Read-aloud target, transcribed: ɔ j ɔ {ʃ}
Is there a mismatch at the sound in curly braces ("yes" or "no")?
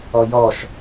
no